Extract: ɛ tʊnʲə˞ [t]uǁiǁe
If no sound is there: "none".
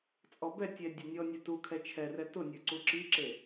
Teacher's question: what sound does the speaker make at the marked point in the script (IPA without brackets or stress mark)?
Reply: ǀ